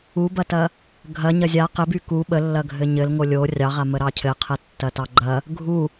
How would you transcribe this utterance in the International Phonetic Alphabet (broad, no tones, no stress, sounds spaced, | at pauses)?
u b ɐ t ɐ | ɡʱ ɐ ɲ ɐ zʲ a q ɘ b y k u ɓ ə lː ɐ ɡʱ ɘ ɲ ɘ l ŋ o lʲ o rʲ ɑ ʁ a m ə ɾ ɑ cʰ ɘ qʰ ə tː ɐ t ɑ ɡ͡ǃ ɐ | ɡʱ u